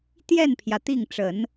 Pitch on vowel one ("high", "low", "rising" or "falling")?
falling